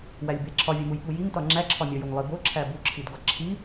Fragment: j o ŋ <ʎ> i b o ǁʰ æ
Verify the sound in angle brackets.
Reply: incorrect: lˠ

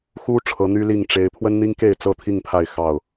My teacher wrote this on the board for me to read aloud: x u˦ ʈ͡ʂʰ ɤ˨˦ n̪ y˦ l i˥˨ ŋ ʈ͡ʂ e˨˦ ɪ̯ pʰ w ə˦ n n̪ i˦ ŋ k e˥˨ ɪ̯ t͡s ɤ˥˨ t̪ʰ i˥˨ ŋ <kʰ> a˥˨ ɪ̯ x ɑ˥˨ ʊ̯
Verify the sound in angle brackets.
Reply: incorrect: pʰ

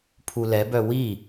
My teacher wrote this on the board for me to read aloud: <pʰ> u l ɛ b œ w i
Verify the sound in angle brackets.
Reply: correct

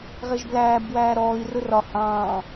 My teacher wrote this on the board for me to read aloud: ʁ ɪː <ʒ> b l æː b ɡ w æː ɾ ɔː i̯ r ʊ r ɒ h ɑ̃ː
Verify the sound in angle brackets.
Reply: correct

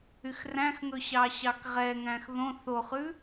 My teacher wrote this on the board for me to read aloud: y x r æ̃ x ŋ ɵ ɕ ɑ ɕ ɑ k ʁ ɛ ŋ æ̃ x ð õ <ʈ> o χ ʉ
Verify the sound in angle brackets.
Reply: incorrect: θ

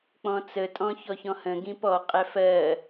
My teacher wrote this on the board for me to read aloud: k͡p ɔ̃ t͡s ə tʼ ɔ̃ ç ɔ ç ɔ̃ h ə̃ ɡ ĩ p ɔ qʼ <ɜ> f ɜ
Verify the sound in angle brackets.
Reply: incorrect: æ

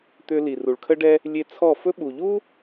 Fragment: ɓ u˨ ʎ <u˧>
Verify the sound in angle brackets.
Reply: incorrect: u˦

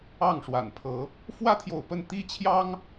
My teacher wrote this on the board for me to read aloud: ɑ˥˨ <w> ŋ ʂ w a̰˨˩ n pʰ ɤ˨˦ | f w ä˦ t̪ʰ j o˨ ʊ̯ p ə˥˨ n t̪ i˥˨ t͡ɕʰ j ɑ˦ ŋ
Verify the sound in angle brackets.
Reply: incorrect: none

